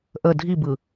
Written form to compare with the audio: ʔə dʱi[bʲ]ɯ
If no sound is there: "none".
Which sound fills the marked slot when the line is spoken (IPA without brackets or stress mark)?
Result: b